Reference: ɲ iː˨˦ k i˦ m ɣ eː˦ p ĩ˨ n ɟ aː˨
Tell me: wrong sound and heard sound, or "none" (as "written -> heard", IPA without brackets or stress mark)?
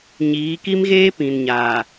ɟ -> ɲ